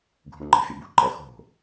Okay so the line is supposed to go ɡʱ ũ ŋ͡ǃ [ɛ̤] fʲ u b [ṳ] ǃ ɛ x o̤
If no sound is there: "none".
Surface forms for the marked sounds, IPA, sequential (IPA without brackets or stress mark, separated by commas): ɛ̤, ṳ